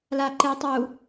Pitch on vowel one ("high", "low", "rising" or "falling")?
low